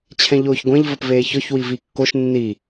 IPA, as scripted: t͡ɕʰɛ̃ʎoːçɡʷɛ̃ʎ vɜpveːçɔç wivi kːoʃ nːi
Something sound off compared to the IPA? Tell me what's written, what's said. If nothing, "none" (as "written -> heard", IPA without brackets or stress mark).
none